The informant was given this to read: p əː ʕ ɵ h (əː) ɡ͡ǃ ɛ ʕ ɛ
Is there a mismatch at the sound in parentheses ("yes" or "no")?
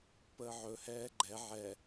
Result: yes